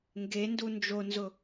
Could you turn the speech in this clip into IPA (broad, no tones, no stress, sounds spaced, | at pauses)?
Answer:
ŋ ɡ e n d u n d͡ʒ o n z ʊ